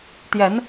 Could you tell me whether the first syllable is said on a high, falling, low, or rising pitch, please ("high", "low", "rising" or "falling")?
rising